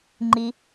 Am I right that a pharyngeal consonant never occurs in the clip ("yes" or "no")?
yes